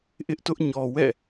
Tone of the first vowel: high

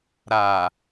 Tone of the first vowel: low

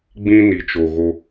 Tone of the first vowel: high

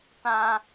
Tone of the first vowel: high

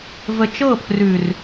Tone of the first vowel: low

